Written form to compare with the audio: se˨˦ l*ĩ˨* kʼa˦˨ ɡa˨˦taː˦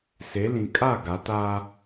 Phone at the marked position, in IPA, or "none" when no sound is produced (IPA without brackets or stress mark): ĩ˨